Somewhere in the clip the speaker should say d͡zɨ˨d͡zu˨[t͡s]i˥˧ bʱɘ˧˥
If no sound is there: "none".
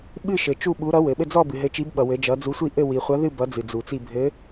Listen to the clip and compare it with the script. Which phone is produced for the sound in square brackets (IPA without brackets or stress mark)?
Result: t͡s